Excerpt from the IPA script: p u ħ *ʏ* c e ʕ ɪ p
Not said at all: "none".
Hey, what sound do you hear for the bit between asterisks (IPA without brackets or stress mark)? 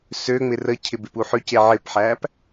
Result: ʏ